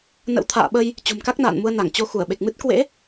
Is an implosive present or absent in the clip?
present